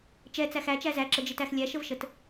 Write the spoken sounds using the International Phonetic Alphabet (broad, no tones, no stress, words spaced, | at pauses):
t͡ʃɛ t͡sæxæt͡ʃæ zæǁəd͡ʒitæx lʲæʃəvʃət